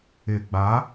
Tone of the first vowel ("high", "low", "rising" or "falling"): low